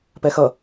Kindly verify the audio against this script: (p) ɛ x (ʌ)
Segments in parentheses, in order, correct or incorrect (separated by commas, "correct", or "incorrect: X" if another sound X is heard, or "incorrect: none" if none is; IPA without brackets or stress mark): correct, correct